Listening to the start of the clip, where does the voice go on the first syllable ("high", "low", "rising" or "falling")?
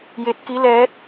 rising